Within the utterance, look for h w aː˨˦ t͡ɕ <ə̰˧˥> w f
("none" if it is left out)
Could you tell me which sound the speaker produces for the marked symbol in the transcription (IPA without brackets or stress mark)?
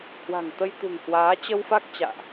ə˧